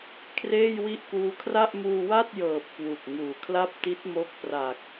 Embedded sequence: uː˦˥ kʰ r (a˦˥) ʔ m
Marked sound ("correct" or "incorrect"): incorrect